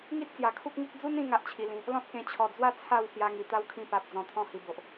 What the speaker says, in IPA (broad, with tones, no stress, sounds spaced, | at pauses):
ŋ i˦ t̚ t͡s j a˨˩ kʰ u˦ k̚ ŋ i˦ k̚ d͡z u˦ n ĩ˧ ŋ a˦ ʔ t͡ɕʰ i˧ l ĩ˧ | l ɔ̃˦ t̚ k ẽ˧ t͡ɕʰ ɔ˨˩ d͡z w a˥˧ t͡sʰ a˥˧ w s j a˧ ŋ i˨˩ t̪ a˦ w kʰ ĩ˧ p a˨ p̚ d͡z ɔ̃˧ t̪ʰ ɔ̃˦ h i˧ b o˨ ʔ